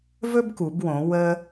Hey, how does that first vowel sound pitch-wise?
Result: high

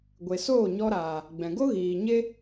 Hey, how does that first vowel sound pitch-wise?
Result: low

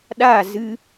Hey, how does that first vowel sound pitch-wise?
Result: falling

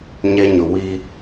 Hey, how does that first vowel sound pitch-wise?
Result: high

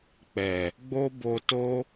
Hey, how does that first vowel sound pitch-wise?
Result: low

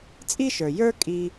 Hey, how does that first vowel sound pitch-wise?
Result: high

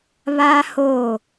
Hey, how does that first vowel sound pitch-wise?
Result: high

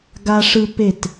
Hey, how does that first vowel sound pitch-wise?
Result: high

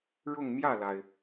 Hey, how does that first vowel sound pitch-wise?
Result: falling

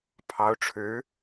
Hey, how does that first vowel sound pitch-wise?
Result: rising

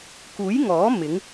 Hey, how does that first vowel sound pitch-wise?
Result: rising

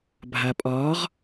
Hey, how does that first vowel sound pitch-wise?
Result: low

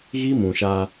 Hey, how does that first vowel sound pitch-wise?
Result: high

